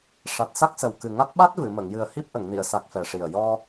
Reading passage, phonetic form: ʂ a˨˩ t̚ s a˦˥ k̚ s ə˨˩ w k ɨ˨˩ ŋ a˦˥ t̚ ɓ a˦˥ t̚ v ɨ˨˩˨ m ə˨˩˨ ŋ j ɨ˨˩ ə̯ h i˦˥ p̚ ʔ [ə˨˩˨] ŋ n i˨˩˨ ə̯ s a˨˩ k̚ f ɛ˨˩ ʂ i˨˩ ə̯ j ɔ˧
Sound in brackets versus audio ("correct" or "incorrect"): correct